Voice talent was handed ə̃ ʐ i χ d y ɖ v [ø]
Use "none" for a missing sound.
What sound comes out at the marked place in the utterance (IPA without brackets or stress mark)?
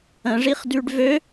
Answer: ø